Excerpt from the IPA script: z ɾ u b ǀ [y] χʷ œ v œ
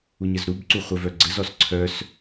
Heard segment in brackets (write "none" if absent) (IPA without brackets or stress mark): u